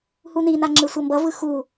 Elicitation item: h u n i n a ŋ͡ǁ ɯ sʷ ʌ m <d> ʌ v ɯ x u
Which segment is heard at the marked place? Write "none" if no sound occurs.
b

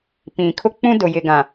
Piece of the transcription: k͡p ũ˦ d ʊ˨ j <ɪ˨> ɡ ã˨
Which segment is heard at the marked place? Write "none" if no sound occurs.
ɪ˨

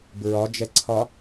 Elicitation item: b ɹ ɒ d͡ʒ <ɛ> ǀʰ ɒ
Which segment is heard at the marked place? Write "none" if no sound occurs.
ɛ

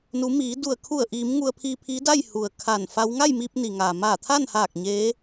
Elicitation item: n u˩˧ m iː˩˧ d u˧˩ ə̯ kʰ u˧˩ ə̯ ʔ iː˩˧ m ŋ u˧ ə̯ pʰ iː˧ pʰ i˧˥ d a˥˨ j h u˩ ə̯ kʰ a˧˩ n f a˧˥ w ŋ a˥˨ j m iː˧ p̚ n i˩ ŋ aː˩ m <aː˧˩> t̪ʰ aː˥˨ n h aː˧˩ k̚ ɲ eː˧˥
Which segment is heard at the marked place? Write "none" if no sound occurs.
aː˧˩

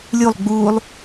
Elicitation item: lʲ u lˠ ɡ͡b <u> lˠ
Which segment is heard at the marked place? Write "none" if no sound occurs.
u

